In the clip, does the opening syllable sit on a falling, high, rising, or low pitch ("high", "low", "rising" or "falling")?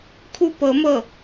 falling